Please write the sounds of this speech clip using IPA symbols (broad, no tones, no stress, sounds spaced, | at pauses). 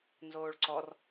n z oː ɭ ǀ ɔ r